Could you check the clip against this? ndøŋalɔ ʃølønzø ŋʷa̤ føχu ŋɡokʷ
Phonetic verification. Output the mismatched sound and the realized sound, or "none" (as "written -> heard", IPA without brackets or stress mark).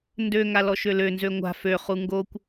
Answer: none